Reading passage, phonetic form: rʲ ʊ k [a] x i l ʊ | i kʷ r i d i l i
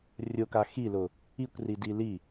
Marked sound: correct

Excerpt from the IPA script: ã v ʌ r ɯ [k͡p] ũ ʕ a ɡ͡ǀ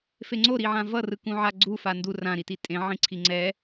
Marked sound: incorrect: k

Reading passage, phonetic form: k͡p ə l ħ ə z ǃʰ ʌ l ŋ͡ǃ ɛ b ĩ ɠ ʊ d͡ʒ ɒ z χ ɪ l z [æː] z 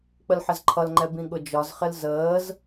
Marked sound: incorrect: əː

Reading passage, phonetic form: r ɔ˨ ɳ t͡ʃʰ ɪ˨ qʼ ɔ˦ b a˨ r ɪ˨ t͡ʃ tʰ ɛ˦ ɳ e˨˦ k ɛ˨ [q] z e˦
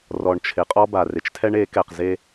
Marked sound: correct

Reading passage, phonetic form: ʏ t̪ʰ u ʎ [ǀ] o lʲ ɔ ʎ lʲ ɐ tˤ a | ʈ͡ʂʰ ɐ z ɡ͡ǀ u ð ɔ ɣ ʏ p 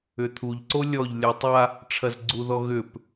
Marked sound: correct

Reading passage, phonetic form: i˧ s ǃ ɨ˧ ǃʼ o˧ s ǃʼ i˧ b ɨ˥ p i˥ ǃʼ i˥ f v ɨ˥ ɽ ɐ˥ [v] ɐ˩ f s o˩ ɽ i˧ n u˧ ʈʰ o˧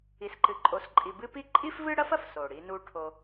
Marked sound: incorrect: f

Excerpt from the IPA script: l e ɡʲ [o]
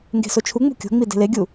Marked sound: incorrect: u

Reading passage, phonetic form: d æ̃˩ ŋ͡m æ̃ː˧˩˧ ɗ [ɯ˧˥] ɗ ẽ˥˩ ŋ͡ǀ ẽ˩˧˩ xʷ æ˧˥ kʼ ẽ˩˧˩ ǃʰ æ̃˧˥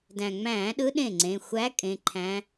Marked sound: correct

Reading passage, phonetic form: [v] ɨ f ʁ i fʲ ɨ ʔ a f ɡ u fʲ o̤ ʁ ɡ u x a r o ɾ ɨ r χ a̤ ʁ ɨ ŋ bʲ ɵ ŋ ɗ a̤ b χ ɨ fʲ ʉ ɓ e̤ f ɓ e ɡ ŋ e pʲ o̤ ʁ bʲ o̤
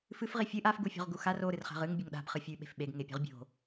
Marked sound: incorrect: f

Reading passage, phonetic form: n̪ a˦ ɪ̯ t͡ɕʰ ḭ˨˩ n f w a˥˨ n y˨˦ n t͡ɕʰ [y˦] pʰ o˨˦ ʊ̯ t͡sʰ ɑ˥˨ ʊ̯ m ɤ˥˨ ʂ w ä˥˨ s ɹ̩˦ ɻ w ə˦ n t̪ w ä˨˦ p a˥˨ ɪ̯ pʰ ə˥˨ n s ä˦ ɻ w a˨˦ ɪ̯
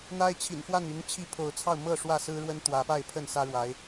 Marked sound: incorrect: i˦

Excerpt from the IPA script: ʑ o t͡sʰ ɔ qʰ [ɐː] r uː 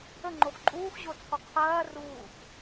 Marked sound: correct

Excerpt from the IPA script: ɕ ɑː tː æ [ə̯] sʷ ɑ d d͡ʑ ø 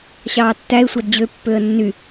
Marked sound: incorrect: ɪ̯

